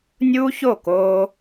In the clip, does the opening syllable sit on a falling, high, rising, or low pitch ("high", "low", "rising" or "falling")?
high